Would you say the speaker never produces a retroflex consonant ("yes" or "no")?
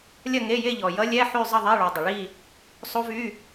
no